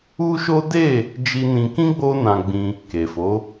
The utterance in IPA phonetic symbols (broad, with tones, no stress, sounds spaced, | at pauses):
u˦ ʃ o˦ d e˦˨ | d͡ʒ i˧ n ĩ˧ k ĩ˦ ɡ͡b o˦ n ã˧ ɡ͡b ĩ˧ | k e˨ f o˨˦